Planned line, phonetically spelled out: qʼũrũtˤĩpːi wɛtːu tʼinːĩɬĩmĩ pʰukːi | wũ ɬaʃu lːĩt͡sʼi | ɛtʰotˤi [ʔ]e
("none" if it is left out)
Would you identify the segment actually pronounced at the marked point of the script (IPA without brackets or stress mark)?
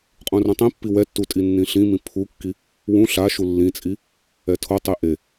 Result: ʔ